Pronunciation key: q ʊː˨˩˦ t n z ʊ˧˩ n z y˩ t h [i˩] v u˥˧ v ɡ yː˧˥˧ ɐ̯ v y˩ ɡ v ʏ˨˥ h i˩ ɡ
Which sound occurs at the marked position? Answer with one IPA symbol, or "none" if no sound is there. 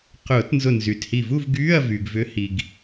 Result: i˧˩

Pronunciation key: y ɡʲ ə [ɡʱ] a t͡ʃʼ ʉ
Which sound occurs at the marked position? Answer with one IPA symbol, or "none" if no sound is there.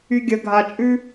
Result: ɡʱ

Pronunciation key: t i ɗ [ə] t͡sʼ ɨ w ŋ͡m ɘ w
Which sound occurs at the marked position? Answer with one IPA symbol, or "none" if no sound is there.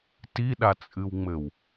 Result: a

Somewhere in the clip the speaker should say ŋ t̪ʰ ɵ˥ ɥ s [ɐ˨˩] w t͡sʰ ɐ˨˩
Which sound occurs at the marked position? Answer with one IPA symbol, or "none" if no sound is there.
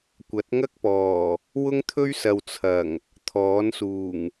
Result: ɐ˨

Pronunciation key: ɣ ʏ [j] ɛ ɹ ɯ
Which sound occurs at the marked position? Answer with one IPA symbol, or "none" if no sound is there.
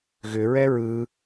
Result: ɹ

